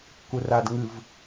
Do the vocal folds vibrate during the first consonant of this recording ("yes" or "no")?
no